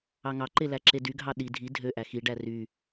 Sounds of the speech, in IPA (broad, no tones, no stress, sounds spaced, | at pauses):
ɑ ŋ ɑ ǃ e l æ ǁ e d y ɡʱ ɑ ɗ i dʱ i dʱ ø ʔ æ x i ɖ æ r y